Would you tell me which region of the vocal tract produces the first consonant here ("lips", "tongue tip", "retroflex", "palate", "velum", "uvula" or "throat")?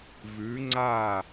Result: lips